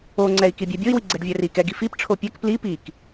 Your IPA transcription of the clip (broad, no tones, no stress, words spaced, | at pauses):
oŋ͡ǀɛi̯kibʲɛ bʲoi̯wiɡ͡ǀɛɖ vʲɛrikɛɡi fip ʈ͡ʂʰopʲɛk pli pik